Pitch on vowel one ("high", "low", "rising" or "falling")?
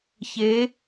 rising